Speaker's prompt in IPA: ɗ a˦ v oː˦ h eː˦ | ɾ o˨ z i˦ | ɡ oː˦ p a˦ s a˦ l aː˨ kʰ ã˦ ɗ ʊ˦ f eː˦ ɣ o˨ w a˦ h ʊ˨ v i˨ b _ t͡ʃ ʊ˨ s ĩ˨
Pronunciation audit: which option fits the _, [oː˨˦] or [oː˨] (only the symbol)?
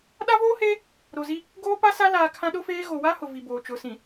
oː˨